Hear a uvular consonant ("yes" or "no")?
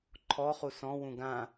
yes